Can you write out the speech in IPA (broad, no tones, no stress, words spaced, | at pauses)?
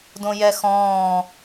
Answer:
dõjɛxɔ̃ː